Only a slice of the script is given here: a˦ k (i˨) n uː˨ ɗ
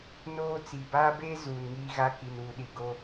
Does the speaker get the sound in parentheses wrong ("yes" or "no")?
no